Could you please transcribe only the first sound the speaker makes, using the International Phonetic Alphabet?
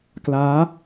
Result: k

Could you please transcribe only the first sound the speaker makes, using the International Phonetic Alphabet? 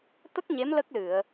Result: t̪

